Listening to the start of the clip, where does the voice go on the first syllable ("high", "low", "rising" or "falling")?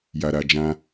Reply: low